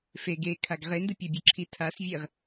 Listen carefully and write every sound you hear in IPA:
f e ɡ e kʰ a ɡ ʁ e n d ɯ pʲ a bʲ ɯ ǁʰ i tʰ a s vʲ e ʁ

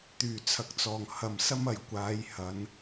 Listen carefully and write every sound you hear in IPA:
t̪ yː˨˩ t͡sʰ ɐ˨˥ k̚ t͡s ɔː˨˩ ŋ h ɐ˨ m s ɐ˥ m ɐ˨˩ j kʷ aː˨˧ j h ɐ˨˧ n

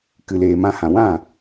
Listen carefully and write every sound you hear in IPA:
k ɨ˨ l eː˨ m ã˧ h ã˨ w ã˦˨

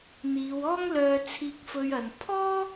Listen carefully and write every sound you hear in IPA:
n̪ iː˨˧ w ɔː˥ ŋ l œː˧ t͡sʰ iː˧ k̚ f ɵ˧ ɥ ɐ˨ n pʰ ɔː˥

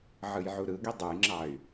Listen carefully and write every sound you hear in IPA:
ʕ ɯ j ʕ u ɾ ɯ ɡ i dˤ u j ŋ͡ǁ ɑ y̯

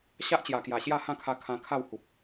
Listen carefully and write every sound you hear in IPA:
ɕ a˦ ʔ t͡ɕ j a˨˩ k j a˨˩ ɕ j a˥˧ h ã˥˧ kʰ a˧ kʰ ã˧ kʰ a˥˧ w h u˨ p̚

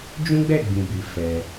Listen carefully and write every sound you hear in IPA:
d͡ʒ ũ˦ ɡ͡b ɛ˦˨ ɡ͡b ĩ˨ b i˨ f ɛ˧

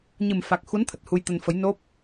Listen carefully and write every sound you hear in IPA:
ɲ ɨ˨˩ m f a˨˩ k̚ x u˨˦ n t̪ʰ ə˨˩ t̚ h u˧ j t̪ ə˧ n f ə˨˦ j n o˦˥ p̚

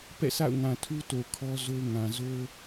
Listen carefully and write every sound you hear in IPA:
p ɛ̰˦˨ sʰ a̰˦˨ ʊ̯ ŋ ã˨ tʰ u˦ t o˨ kʰ ɔ˦ z o˦ ʊ̯ ŋ ã˨ z o˦

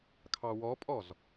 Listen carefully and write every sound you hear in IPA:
kʰ ɑ w ɔ pʼ ɔ z

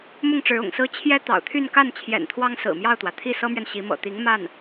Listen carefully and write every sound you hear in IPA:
m ʊ˥˩ ŋ ʈ͡ʂ ɻ̩˧˥ ʊ̰˨˩ ŋ s ɹ̩˥ t͡ɕʰ j ɛ˥ t̪ ɑ̰˨˩ ʊ̯ t̪ʰ y˥˧ n k a˥˩ n t͡ɕʰ j ɛ̰˨˩ n t̪ʰ w ɑ˥ ŋ s ɹ̩˨˩ m j ɑ˥˩ ʊ̯ t̪ w ä˩ t̪ʰ i˥˩ s ɤ˥ m ɥ ɛ˨ n ɕ i˧˥ m ɤ̰˨˩ t̪ i˧˥ ŋ m a˥˩ n

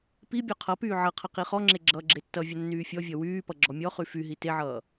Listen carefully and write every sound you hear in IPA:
p i bʲ ɔ qʰ ʌ p yː ʕ ʌ qʰ ʌ q i χ ɔ ŋ͡ǁ e ɡ͡ǁ ʌː ɡ͡ǁ e tː ʌ vʲ ʌ nː yː fʲ ɔ vʲ ʌ w yː p ʌ ɡ͡ǁ ɔ mʲ ɔ χ y f y ɦ i t e ʕ ʌː

